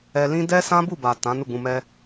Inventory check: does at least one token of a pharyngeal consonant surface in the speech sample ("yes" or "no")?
no